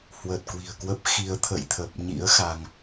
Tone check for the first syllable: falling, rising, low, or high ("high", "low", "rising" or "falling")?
low